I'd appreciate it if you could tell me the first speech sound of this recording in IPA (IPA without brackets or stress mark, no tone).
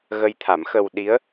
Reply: ɣ